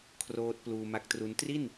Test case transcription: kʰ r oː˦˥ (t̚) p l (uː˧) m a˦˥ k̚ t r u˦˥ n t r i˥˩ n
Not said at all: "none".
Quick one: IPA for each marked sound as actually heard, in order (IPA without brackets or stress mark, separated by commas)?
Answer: t̚, uː˧